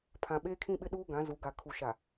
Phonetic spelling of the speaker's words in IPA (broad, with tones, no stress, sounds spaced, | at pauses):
pʰ ã˨ ɓ eː˦ kʰ ĩ˦ ɓ ɪ˦ ɗ uː˦ ɡ ã˨˦ z u˨˦ ɡ a˨ kʰ u˨ ʃ a˨